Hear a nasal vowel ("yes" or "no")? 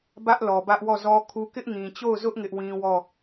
yes